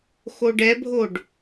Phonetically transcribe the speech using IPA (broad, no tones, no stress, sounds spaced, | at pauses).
x o ɖ ɛ bʱ o ɖ